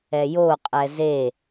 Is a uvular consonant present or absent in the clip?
present